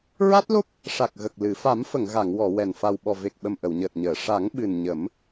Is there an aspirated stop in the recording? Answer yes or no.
no